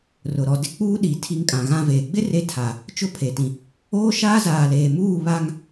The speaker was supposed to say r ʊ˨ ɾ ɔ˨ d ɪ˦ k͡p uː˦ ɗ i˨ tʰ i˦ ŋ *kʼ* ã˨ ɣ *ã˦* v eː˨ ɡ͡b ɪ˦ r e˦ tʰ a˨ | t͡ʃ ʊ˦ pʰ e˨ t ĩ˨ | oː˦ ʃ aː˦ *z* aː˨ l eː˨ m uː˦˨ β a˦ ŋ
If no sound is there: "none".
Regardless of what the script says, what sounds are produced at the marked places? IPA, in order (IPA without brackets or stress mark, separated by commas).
kʼ, ã˦, z